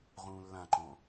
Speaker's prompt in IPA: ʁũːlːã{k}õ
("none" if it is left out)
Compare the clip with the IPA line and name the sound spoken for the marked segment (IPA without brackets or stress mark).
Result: ǃ